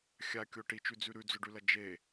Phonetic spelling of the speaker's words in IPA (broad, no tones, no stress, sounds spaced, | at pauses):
xʲ a kʲ o ʈ i t͡ʃ ʉ d͡z ʉ ɾ ʉ d͡z ɵ ɖ ʉ l ɐ d͡ʒ e